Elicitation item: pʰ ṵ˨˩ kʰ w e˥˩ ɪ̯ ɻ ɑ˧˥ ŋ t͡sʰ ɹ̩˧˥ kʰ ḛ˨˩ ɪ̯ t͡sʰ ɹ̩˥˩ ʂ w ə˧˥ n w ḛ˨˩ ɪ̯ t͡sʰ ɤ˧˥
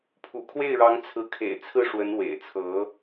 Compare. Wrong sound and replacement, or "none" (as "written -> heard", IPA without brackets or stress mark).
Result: none